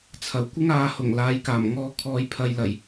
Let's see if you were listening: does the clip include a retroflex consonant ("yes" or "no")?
no